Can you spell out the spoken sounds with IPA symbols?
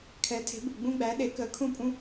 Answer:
kʰ ɛ˩˥ tʰ e̤˩˥ b u˩ ɡ͡b ũ˧ ɡ͡b æ˩˥ ɗ e˩˥ k əː˩˥ kʰ ũ˥˩ pʼ ũ˥

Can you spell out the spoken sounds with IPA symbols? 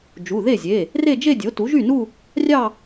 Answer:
d͡ʒ u˩˧˩ ð e˥˩ zʲ e˩˧˩ | r e˥˧ d͡ʒ e˥˧ dʲ o˩˥ t u˩˥ ʒ y˥˩ n u˥˧ | rʲ ɑ˥˧

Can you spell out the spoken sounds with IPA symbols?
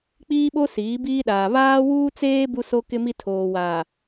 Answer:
k͡p iː˦ ɓ o˦ s iː˨˦ b iː˦ ɗ aː˨ β aː˦ w uː˦ t͡s eː˦ b u˦ s o˦ k ɪ˦ m i˦ tʰ oː˨ w aː˨

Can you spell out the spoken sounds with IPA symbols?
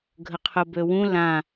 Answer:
ɡʱ ə qʰ ʊ b ø w ũ l ã

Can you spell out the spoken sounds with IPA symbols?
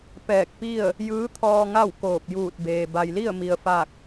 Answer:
p ɛː˧˩ k̚ p i˥˨ ə̯ | j ɯː˧˥ t̪ʰ ɔː˧ ŋ a˥˨ w k oː˧˩ p̚ j uː˧˩ t̚ b eː˩ b a˩ j l i˥˨ ə̯ m i˩ ə̯ f a˧˩ k̚

